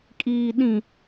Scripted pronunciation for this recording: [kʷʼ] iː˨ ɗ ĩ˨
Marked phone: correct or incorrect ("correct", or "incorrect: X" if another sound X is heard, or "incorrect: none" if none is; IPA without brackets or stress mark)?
incorrect: kʼ